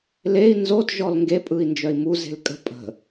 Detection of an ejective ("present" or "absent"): present